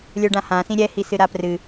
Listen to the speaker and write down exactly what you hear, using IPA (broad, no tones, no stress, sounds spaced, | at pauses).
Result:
lʲ ə˞ ɖ ã h ã s ĩ ɾʲ ɛ h i s ɨ ɾ a p r ɨ